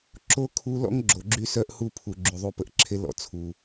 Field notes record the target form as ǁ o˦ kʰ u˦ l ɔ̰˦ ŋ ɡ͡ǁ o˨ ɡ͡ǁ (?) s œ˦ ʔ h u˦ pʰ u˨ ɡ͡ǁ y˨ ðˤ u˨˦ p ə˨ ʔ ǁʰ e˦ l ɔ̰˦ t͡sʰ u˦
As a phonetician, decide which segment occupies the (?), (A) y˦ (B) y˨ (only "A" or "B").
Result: A